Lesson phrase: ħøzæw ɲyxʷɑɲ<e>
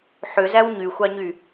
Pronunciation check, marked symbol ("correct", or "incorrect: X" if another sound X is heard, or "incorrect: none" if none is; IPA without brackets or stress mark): incorrect: y